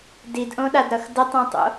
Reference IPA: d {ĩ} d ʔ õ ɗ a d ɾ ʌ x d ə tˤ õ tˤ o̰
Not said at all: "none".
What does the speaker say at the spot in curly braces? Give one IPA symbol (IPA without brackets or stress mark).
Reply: i